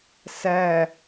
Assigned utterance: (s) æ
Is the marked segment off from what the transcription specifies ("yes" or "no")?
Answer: no